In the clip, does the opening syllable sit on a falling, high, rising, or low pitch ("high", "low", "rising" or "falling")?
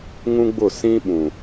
high